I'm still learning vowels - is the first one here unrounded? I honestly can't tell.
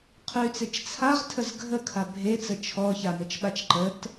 no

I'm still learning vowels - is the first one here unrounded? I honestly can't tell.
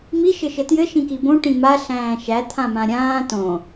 yes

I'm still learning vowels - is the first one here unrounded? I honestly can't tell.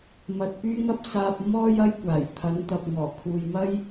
yes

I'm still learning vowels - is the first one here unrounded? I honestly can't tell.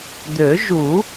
no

